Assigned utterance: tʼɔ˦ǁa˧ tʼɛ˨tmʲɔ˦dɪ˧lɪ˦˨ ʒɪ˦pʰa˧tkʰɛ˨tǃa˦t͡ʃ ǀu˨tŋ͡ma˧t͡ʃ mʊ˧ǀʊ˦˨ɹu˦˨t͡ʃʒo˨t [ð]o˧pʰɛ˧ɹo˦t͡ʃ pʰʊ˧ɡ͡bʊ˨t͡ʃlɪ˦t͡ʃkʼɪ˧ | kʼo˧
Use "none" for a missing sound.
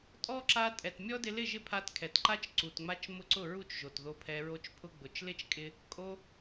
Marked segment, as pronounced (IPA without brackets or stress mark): ð